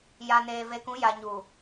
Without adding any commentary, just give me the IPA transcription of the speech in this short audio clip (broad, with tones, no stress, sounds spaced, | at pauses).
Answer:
j a˨ n eː˨ v e˨ k ũ˨˦ j a˨ ɲ u˨